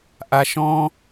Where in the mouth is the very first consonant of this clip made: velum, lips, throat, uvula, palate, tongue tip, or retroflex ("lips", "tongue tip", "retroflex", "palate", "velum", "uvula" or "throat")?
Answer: throat